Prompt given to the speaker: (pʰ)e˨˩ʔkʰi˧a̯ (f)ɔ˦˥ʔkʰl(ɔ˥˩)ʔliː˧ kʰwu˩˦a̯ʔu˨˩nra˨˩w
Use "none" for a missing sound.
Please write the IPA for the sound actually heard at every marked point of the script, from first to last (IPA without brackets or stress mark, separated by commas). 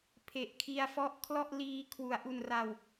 pʰ, f, ɔ˥˩